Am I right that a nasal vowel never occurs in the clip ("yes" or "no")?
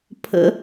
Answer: yes